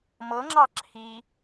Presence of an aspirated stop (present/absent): present